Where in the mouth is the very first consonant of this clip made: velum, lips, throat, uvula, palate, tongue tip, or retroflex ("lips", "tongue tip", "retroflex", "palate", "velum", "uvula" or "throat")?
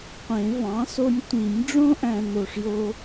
uvula